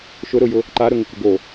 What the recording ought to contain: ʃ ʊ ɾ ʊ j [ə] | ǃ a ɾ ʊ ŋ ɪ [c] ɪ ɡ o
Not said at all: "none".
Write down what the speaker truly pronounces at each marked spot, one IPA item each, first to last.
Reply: ʊ, k

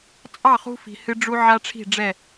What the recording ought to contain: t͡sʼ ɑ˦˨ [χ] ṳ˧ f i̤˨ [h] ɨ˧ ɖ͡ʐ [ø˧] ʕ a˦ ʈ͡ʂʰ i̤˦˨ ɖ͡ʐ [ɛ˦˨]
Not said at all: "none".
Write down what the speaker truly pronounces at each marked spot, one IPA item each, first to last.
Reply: χ, h, u˧, ɛ˦˨

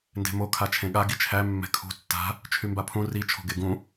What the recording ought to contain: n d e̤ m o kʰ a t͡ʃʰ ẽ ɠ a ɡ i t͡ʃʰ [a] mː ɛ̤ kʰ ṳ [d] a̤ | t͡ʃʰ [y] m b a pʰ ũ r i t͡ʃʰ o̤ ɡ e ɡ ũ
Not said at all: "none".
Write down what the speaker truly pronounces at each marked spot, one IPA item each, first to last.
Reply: æ, tː, y

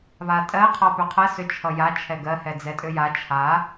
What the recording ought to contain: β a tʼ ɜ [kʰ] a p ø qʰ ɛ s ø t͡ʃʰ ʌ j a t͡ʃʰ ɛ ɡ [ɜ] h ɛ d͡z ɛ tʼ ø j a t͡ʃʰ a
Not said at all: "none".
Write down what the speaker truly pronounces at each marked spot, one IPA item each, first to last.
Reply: qʰ, ɜ

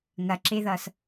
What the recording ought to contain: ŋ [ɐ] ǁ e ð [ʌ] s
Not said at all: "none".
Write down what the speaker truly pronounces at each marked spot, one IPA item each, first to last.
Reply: ɐ, ʌ

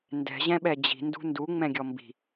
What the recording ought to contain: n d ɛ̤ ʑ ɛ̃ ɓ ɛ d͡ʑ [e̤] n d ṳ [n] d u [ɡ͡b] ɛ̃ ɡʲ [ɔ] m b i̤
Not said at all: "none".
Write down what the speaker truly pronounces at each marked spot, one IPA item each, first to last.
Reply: i̤, n, ŋ͡m, ɔ

